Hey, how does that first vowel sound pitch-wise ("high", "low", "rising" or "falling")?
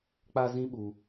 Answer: high